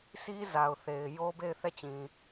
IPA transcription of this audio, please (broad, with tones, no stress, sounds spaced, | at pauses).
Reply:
sʰ i˦ z a˨ ʊ̯ θ e˨ ɪ̯ j o˦ b e˦˨ ɪ̯ θ ɛ˦˨ t͡ɕ ĩ˨